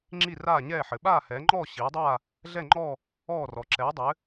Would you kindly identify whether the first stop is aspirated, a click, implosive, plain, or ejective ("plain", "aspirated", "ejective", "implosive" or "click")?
click